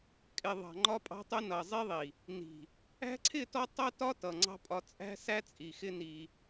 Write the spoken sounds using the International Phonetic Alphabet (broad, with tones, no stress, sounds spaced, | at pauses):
kʼ ɪ˨ ðˤ ɑ̤˨ ŋ͡ǃ ɒ˦ pʼ ɑ̤˦ tˤ ʊ˦ n ʌ˨ zˤ i˦ ðˤ i˨ | n i̤˨ | æ̤˦ ǀʰ ɪ˦˨ t ɔ˦ tˤ ʌ˦ t ɒ˦ t ʌ˨ ŋ͡ǀ ɑ̤˦ pʼ ɒ˦ t͡sʼ æ̤˦ s æ˦ t͡sʼ i˨ x ɪ˦ n i˦